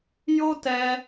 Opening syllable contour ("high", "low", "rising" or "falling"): high